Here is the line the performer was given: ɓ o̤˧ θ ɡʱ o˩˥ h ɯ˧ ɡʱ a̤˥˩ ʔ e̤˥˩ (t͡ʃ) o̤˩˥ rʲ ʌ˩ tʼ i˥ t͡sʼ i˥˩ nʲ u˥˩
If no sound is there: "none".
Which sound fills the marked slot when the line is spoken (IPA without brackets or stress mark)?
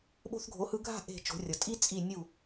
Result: t͡ʃ